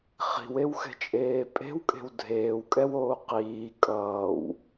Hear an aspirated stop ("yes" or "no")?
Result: no